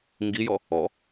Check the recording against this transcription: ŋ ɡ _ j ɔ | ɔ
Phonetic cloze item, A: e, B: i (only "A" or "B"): B